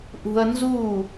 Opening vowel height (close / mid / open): close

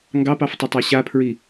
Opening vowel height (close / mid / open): open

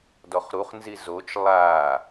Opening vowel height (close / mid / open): mid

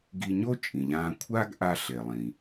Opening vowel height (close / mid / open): close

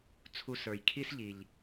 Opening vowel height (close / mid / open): close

